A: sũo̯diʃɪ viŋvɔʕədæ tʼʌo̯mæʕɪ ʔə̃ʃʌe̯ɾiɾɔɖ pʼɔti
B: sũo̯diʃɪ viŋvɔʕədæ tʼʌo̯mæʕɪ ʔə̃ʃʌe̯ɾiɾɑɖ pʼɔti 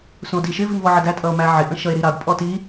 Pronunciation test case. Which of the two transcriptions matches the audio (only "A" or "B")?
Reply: B